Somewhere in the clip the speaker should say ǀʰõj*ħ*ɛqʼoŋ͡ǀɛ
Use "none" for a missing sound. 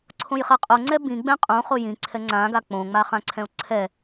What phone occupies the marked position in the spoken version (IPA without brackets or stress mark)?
χ